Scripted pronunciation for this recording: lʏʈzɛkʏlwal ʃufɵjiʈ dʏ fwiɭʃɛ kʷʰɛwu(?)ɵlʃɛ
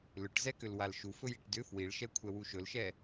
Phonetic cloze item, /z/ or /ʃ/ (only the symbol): ʃ